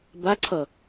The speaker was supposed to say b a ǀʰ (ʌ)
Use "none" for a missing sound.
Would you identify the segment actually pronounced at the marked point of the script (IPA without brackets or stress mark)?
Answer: ʌ